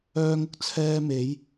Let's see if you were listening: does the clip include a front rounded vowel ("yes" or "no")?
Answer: yes